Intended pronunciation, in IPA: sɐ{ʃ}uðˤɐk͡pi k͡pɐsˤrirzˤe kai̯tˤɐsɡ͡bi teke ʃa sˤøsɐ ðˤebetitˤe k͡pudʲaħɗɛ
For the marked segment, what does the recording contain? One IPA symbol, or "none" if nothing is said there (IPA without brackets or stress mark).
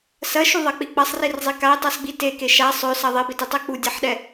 ʃ